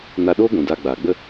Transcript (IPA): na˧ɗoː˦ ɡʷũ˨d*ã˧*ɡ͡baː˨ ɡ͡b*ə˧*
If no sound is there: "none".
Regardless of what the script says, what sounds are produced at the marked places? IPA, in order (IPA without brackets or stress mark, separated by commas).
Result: a˧, ə˧